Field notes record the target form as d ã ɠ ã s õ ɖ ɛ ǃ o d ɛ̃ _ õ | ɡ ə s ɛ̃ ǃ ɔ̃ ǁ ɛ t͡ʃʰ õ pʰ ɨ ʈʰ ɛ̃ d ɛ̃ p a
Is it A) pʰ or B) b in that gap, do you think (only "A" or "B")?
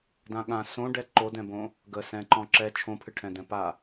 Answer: B